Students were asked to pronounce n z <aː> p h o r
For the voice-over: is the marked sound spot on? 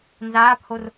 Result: yes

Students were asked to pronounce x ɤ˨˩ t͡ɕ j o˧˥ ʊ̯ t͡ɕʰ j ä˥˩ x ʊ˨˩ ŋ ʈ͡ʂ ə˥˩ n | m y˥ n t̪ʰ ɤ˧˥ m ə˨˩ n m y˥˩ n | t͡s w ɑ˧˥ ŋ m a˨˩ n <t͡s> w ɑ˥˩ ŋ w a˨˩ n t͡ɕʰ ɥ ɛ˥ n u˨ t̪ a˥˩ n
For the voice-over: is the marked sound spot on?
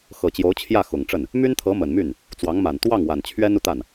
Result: no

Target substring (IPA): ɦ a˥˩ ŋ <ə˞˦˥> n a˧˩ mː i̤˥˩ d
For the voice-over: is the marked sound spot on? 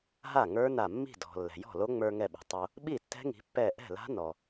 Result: yes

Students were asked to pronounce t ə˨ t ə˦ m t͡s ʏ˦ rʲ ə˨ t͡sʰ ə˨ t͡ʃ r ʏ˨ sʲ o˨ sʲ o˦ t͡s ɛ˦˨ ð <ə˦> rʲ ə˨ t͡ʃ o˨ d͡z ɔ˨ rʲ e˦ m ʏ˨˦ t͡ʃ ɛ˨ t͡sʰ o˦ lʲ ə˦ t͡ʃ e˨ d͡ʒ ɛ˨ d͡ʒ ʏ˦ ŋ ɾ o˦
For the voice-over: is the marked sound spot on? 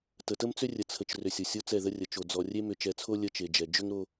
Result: yes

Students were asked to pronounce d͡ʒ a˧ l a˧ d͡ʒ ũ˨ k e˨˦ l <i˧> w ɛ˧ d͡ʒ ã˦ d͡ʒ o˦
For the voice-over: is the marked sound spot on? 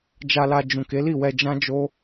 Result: no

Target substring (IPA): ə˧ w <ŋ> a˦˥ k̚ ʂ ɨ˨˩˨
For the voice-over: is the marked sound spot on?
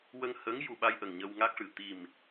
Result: yes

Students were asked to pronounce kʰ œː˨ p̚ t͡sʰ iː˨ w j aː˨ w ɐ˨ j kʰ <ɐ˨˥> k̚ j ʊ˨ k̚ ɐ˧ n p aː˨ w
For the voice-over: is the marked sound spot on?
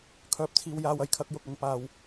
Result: yes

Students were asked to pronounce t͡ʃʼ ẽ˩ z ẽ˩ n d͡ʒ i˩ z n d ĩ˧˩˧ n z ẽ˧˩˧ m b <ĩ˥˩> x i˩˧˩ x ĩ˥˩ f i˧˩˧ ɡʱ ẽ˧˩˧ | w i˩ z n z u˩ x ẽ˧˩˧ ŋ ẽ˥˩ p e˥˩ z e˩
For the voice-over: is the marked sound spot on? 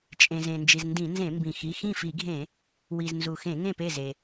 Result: no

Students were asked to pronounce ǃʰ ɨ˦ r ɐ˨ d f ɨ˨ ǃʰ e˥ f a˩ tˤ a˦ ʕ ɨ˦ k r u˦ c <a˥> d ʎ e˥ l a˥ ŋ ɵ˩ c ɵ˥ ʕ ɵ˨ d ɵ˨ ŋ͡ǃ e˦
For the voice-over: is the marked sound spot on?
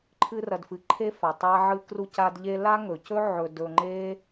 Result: no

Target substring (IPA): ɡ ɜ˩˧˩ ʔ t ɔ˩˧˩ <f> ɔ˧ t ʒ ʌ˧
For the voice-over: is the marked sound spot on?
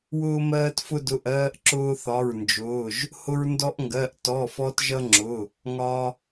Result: yes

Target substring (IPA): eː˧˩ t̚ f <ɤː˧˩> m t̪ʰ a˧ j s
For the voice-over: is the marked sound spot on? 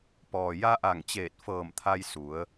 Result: yes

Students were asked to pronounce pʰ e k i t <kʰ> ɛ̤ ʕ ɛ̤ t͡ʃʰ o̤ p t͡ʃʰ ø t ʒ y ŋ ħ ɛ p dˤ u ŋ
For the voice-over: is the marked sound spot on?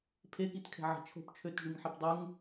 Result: yes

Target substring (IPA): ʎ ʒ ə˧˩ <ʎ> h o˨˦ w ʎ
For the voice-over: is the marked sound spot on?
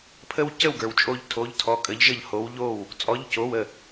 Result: yes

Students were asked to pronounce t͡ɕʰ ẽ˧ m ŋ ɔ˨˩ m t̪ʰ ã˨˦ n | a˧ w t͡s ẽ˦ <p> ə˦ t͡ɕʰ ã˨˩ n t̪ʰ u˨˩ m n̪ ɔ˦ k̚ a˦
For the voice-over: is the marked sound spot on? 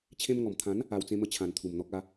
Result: no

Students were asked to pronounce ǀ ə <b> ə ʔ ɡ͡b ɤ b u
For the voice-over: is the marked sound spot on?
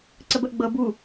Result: yes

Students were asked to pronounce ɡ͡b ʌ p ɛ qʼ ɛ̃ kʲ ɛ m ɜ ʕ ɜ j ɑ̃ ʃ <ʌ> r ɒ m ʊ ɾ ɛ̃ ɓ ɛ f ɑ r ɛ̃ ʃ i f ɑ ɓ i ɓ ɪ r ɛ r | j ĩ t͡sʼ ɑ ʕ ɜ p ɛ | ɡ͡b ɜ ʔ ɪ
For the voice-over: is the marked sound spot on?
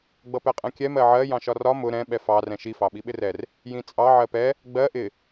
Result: no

